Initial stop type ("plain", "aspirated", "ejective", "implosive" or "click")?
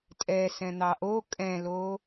ejective